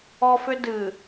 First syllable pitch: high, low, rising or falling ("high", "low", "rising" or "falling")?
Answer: high